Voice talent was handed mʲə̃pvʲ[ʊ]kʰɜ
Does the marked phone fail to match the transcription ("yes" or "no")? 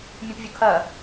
no